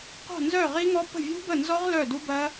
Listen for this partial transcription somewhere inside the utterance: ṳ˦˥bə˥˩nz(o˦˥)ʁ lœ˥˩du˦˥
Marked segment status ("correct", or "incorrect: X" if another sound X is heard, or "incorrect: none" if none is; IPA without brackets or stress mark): incorrect: ɔ˦˥